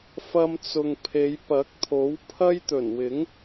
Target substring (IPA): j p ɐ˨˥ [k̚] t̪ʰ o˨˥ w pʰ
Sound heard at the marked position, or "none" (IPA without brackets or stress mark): k̚